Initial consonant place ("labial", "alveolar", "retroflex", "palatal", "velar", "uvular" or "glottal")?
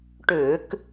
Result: retroflex